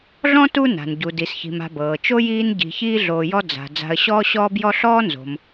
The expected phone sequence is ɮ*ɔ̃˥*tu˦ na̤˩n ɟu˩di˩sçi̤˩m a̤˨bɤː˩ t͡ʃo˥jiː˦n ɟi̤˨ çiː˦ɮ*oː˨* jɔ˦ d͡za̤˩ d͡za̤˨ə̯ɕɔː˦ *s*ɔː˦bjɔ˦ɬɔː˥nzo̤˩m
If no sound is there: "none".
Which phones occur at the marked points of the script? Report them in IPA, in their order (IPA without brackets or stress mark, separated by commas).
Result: ɔ̃˥, oː˨, ɕ